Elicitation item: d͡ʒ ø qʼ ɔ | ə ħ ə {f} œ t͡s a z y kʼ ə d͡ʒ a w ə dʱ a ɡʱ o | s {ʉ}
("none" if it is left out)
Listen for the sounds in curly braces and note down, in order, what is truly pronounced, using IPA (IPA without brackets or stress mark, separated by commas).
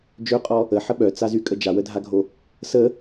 ɓ, ə